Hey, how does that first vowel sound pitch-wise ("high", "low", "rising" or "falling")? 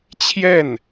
falling